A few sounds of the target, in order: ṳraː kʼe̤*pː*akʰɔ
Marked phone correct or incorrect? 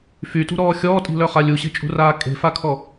incorrect